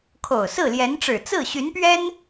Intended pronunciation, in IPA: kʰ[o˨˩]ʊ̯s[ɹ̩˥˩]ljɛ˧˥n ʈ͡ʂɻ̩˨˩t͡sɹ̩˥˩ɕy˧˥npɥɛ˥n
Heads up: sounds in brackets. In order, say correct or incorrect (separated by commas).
correct, correct